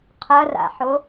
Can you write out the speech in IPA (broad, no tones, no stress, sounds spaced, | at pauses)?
qʰ ɐ r a̰ ħ o